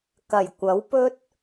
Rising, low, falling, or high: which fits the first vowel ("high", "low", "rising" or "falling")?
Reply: low